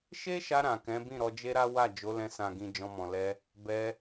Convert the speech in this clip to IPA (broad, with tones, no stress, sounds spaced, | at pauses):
ʃ e˦ ʃ a˧ ɾ ã˨ k ɛ̃˨˦ b ĩ˦˨ ɾ ɔ˧ d͡ʒ e˦ ɾ a˦ w a˦˨ d͡ʒ o˨˦ l ɛ̃˧ s ã˨ ɡ ĩ˨ d͡ʒ ɔ̃˧ m ɔ̃˨ l ɛ˧ | b ɛ˧